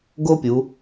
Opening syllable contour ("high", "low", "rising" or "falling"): high